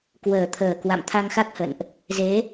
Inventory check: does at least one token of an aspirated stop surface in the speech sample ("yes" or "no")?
yes